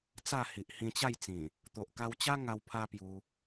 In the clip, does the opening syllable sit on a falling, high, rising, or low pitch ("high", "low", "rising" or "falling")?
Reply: falling